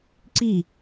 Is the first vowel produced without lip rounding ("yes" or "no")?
yes